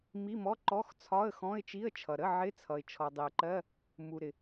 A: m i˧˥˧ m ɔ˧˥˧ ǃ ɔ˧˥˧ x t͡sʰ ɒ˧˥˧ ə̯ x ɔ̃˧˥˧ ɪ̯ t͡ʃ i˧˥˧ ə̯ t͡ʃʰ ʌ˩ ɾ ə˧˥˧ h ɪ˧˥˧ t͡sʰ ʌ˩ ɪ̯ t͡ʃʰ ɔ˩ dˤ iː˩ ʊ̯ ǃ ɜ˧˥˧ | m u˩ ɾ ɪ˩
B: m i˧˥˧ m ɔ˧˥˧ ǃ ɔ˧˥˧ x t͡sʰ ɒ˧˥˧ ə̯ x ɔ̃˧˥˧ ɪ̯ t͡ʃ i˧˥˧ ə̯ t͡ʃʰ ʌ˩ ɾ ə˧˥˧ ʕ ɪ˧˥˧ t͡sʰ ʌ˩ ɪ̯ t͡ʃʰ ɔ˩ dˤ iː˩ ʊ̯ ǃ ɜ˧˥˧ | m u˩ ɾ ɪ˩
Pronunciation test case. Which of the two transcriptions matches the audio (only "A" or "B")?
B